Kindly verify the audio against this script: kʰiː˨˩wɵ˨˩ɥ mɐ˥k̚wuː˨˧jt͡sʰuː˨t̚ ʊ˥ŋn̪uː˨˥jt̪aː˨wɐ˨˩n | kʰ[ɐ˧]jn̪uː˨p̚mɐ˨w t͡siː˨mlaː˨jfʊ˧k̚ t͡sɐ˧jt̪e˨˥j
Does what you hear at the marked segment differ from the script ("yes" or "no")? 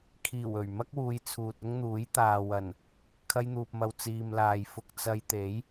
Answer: no